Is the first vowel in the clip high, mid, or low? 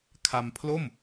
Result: low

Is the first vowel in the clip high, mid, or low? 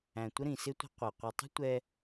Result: low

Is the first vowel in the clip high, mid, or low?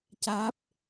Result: low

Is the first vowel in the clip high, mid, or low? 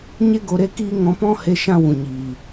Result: mid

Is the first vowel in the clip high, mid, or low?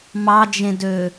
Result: low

